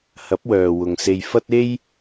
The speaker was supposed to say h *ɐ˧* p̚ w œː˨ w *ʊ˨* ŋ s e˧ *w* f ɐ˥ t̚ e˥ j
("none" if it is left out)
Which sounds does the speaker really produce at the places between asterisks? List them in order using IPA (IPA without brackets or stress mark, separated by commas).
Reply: ɐ˨˥, ʊ˨, j